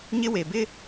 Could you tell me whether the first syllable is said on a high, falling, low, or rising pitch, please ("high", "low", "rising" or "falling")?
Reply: high